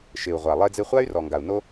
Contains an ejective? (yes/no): no